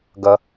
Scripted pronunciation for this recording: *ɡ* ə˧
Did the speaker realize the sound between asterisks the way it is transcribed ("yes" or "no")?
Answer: yes